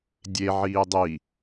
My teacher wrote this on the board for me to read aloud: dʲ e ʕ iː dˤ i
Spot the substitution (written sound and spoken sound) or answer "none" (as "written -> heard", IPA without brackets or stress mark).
none